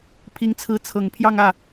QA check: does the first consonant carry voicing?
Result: no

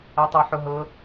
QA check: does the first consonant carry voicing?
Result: no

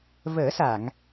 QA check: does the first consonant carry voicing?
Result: yes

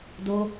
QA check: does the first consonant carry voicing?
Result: yes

